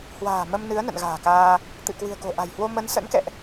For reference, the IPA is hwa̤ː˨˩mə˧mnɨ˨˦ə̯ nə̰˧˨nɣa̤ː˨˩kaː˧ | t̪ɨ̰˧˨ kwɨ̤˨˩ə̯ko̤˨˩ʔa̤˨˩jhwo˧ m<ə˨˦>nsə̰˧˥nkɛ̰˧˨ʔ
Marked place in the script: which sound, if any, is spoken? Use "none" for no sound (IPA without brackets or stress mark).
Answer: ə˨˦